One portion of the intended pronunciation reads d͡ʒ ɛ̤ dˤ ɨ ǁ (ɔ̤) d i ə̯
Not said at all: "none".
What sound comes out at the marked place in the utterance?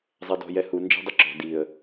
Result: ɔ̤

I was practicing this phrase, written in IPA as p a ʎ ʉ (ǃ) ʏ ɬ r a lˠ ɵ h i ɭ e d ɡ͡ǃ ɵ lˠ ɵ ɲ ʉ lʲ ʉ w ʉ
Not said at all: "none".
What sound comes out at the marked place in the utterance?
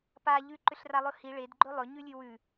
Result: ǃ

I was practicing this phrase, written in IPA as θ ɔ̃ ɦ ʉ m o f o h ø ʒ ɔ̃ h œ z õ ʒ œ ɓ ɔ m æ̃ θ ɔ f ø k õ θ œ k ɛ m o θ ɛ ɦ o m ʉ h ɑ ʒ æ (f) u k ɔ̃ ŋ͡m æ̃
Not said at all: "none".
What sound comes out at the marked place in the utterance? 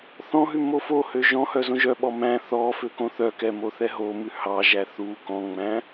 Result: θ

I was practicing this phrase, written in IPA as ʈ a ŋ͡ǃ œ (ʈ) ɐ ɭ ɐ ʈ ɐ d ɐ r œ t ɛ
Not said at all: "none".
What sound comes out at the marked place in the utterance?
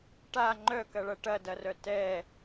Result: k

